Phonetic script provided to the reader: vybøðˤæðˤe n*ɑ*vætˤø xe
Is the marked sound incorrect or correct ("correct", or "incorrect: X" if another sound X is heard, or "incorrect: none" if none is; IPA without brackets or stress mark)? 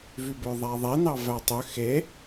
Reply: correct